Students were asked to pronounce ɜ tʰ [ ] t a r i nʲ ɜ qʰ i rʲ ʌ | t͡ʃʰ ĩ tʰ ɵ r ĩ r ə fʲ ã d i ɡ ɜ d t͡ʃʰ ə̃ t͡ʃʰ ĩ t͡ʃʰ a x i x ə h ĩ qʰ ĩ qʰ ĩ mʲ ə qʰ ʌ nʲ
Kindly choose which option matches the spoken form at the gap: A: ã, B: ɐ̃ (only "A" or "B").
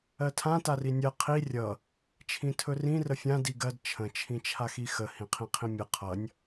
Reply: A